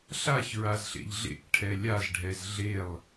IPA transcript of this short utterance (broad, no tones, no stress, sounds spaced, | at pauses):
ɬ a ç ɹ a z ɬ ḛ ʎ ɮ ḛ k ʈʰ ɛ lʲ a z ɖʱ ɛ z ɮ e lˠ